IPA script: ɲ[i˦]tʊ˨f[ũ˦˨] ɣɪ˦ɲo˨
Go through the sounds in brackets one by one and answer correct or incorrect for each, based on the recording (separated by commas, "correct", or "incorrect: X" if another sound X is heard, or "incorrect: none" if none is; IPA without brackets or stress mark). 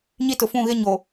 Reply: correct, correct